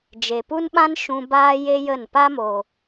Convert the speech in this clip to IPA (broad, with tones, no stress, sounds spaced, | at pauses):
d͡ʒ e˨ p u˦ n ɓ ã˦ n ʃ ũ˧ b aː˦ j e˦ j ə˦˨ n p a˦ m o˨